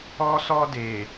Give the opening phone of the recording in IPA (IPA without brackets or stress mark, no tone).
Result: ɔ